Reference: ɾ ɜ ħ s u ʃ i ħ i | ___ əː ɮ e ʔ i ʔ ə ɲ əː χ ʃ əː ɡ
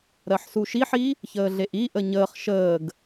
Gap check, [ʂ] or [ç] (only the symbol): ç